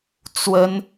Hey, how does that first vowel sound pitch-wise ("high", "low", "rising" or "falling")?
high